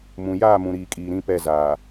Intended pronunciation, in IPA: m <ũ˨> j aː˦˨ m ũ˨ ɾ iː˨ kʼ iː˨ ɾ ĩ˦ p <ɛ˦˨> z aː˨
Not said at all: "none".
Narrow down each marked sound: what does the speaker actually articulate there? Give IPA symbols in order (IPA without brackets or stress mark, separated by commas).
ũ˨, ɛ˦˨